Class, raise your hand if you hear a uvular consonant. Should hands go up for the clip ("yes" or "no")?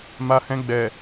no